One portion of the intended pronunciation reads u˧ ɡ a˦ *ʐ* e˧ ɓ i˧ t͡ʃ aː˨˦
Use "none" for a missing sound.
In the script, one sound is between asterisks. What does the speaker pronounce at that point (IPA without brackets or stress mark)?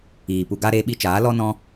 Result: ɾ